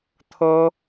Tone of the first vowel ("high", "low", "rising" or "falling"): high